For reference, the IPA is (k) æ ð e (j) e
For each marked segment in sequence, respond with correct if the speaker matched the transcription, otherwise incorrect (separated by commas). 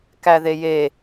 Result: correct, correct